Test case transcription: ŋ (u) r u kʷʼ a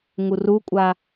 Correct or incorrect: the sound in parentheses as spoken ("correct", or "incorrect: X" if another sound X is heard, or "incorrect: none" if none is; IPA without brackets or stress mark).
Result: correct